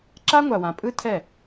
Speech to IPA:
ǁ a˦ ŋʷ a˨ w ã˨ pʼ ɯ˦ tʰ ɛ˦˨

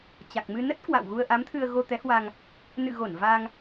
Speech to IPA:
t͡ɕ a˨˩ k̚ m ɨ˧ n ə˦˥ t̚ k w a̰˧˨ w ɣ u˧ ə̯ ʔ a˨˦ m t̪ʰ ɨ˧ ə̯ ɣ o˧ t̪ ɛ˨˦ h w a˧ ŋ | n ɨ̰˧˨ ɣ o˧˩ n v a˧ ŋ

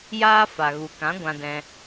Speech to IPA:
j aː˦ f a˨ ɣ u˨ k ã˨˦ ɡʷ ã˧ d ɛ̃˧

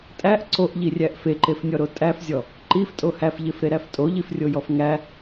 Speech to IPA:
tʼ æ ʔ ǀ o ʔ ʎ i rʲ æ ʔ f e ǃ e f nʲ ɔ ɾ o tʼ æ f zʲ ɔ | ǃ i f tʼ o h æ f ʎ e f ɾ e ɾ æ f tʼ o ʎ i f rʲ o j ɔ f ŋ æ

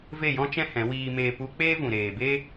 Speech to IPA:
v e˦˨ j ɔ̃˦ t͡ʃ ɛ̃˦ h ɛ̃˨˦ w iː˦ m eː˦ p u˧ k͡p eː˦ v ũ˨ ɾ eː˨ b e˦

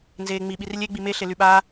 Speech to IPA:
n z eː ŋ͡m i ɓ i r lʲ e ɡ͡b i m e ɬ e l y ɓ aː

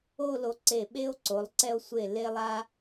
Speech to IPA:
o˥˧ l o˧ ǀ e˧˩ ɓ e˥ o̯ ǀ o˩˧ lˠ ǀ ɛ˧ o̯ sʷ e˧˩ l e˧ lˠ a˧

